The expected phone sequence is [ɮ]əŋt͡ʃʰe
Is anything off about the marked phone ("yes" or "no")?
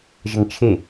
yes